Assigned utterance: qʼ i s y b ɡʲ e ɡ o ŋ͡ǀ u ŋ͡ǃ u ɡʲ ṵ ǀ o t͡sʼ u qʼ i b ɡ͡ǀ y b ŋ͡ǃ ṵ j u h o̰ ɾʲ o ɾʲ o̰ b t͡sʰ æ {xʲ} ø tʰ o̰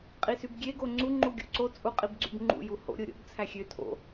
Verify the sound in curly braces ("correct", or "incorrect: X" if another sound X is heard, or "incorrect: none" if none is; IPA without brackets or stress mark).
correct